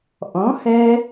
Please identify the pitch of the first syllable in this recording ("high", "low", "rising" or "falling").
rising